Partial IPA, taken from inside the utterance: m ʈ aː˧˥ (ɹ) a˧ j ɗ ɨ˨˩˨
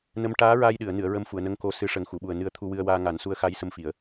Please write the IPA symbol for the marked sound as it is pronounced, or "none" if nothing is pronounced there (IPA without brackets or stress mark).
ɹ